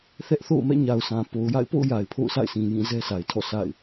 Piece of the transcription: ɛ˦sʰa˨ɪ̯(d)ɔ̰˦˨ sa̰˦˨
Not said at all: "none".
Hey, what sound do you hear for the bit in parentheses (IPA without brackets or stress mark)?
tʰ